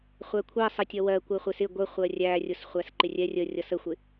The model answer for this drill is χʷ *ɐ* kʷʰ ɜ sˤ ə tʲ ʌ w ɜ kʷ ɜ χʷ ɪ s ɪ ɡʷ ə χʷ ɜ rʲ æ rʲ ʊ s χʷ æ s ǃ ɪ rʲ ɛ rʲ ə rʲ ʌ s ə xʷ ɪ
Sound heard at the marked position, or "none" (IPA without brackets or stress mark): æ